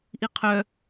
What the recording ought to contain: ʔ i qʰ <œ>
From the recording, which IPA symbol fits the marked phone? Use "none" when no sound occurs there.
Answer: œ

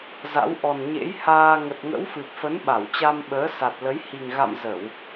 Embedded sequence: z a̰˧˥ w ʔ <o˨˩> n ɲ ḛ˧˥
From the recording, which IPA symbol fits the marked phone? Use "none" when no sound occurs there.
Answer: ɔ˨˩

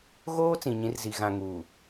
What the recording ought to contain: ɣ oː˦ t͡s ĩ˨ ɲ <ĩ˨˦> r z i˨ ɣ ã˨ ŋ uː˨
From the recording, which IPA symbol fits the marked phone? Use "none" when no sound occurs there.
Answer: ĩ˨˦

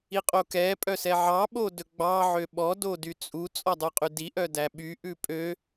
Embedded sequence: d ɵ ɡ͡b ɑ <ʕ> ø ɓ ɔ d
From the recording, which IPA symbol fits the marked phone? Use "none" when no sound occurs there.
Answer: ʕ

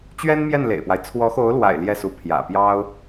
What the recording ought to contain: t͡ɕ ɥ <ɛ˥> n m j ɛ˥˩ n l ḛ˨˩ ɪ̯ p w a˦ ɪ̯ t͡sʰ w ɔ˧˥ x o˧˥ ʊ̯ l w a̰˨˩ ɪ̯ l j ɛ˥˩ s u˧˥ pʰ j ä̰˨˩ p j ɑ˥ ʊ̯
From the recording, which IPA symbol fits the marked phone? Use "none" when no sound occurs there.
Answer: ɛ˥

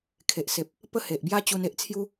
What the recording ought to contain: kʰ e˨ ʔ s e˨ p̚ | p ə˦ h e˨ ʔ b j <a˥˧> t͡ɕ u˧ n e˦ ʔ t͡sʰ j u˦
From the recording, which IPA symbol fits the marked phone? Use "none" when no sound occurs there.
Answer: a˦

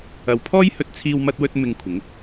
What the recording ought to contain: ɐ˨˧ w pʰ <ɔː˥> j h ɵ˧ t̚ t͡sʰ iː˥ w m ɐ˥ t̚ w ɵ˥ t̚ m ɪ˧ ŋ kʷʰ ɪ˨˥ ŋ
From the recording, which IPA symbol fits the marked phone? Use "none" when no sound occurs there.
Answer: ɔː˥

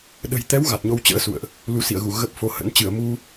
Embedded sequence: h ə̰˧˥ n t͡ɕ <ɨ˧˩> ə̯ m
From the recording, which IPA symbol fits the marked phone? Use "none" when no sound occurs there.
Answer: ɨ˧˩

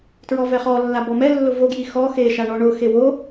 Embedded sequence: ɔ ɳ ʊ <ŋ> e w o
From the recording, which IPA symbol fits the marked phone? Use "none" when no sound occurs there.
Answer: x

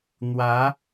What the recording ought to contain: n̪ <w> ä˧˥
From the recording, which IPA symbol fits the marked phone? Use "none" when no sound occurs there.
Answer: w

